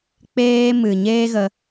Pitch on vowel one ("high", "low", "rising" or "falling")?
high